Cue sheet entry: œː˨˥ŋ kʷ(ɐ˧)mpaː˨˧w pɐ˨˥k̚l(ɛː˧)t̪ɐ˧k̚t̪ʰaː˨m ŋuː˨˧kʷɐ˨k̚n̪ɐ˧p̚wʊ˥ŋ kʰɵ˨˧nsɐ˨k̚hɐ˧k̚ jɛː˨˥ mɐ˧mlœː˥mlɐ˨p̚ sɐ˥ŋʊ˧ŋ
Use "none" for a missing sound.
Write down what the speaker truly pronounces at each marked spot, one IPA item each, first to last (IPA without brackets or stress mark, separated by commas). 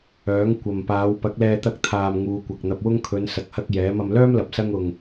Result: ɐ˨, ɛː˧